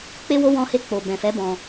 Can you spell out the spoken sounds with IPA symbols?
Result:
k͡pe˦wo˦ wɔ̃˧he˧ k͡po˨bɛ̃˨fɛ˨˦ bɔ̃˧

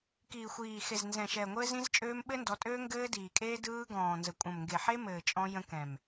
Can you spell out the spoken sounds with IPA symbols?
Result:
kiː˨xʷiː˨xe˨z nzɛ̃˨ʃɛ˨ ŋʷɘː˦zĩ˦zt͡ʃʼøː˦m ɓɘ˦ndɔ˨˦tʼøː˦ ŋɡɘː˦diː˨kʼeː˦ dɯː˦ ɡɔ̃ː˨nzə˨kʷʼə̃˨m ŋɡe˨ħe˦mɘː˨ t͡ʃʼɔ̃˦ jə̃˦kɛ̃˨m

